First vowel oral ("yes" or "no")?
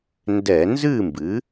yes